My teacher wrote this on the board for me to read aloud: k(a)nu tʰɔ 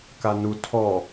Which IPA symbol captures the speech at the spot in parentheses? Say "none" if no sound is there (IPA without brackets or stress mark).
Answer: a